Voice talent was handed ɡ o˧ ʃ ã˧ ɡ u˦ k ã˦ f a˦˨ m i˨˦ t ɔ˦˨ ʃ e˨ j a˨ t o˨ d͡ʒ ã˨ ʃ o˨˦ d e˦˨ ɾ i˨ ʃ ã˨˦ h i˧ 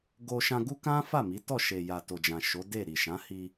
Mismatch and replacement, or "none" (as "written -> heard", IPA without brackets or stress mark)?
none